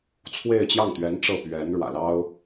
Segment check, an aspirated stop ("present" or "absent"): present